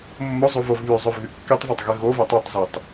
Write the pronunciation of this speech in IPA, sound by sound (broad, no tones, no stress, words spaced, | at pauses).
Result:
mːozˤuvov βyzˤøvɣy kːitˤvɑtˤɣe ɣovo tˤøtˤzitˤ